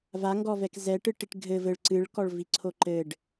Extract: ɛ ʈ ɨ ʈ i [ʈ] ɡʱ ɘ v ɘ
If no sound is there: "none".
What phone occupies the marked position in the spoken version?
ʈ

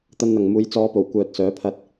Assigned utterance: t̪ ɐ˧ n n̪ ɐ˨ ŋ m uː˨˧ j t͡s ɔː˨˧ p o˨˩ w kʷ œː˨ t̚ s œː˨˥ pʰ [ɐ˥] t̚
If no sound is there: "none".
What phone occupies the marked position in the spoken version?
ɐ˧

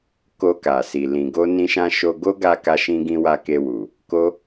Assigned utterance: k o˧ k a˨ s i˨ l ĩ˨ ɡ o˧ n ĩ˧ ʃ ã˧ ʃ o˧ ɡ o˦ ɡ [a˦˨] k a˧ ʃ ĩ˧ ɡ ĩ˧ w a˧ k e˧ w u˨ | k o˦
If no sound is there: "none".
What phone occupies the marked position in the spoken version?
a˧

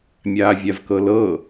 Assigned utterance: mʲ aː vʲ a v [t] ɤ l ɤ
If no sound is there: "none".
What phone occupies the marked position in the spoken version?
k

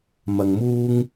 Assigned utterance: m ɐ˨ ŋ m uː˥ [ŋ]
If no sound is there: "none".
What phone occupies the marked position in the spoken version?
ŋ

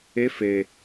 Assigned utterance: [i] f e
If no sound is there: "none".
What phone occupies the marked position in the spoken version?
e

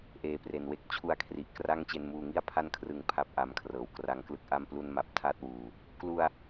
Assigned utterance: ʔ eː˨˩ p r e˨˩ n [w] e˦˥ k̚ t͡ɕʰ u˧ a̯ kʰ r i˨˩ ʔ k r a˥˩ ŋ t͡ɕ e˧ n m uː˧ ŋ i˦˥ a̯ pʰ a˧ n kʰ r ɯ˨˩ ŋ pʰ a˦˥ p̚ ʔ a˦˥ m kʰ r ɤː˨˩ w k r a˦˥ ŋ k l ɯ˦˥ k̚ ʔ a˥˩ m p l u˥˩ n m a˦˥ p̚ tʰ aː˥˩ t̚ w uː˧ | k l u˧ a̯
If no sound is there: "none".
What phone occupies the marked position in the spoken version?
w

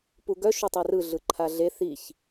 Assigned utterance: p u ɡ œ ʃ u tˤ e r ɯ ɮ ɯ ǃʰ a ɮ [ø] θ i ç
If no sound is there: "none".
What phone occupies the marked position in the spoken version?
e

